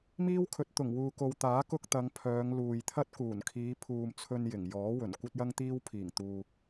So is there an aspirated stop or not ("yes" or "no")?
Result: yes